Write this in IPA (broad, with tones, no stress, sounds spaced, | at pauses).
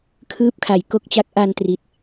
kʰ ɯː˥˩ p̚ kʰ a˩˦ j k o˥˩ k̚ t͡ɕ a˦˥ k̚ ʔ a˧ n t r i˨˩ t̚